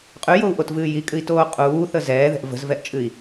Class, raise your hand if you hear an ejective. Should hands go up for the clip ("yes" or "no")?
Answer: yes